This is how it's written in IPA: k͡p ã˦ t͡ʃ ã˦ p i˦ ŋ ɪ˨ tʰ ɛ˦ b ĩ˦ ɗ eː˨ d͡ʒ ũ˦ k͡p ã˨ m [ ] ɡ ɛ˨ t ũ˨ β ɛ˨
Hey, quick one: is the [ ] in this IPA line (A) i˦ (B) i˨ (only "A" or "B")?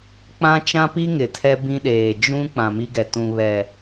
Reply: A